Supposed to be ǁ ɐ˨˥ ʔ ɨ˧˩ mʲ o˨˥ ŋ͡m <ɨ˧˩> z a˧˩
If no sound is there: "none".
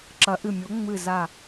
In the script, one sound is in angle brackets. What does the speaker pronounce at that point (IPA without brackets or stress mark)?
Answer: ɨ˧˩